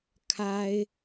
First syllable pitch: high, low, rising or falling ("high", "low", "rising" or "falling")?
high